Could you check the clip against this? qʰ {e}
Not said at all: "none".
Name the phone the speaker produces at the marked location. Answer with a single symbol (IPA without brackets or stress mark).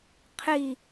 i